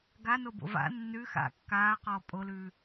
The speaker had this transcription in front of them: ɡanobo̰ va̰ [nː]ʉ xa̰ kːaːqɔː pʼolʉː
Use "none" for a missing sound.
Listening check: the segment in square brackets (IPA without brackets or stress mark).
nː